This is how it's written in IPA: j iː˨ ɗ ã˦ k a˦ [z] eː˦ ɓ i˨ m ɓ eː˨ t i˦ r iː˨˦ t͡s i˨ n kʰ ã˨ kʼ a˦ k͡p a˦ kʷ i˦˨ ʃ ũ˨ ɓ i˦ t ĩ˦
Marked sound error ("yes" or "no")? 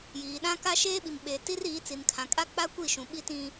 yes